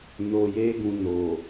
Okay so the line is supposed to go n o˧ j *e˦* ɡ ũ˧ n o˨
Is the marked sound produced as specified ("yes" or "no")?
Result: yes